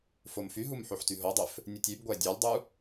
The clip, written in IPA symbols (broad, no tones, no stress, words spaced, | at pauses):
fomfyɦum ħoħtyɦodˤøf | nʲɯtʲybɡʷæ dʲɑlʲdˤu